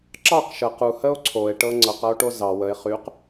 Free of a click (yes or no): no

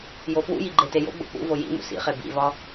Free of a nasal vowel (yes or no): yes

